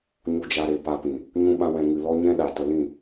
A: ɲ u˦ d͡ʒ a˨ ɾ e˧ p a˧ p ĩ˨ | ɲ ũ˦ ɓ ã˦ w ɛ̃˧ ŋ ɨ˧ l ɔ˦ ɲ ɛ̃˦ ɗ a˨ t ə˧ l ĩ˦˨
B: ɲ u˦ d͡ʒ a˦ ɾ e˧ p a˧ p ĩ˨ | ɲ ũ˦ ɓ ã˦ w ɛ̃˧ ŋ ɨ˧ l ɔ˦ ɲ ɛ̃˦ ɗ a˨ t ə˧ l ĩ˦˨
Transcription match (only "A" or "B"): B